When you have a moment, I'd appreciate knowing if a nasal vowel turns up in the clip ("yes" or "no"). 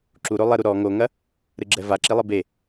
no